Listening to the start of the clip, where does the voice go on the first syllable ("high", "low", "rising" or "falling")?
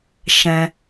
low